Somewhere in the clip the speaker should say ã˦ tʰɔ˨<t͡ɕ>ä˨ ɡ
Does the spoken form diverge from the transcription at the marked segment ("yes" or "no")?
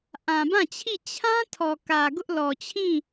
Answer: yes